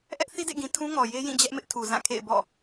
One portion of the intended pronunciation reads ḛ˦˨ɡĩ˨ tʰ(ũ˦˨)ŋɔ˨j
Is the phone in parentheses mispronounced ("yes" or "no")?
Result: yes